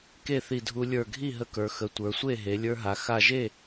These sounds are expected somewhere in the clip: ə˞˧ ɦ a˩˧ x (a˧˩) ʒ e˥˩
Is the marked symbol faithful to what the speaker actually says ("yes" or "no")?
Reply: yes